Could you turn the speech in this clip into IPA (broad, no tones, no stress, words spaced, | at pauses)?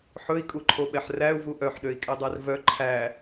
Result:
ħɵi̯kʼuǃʰoɓɛħ ræu̯vu ʔœħɗøi̯kʼɛdˤær vœ ǃʰæ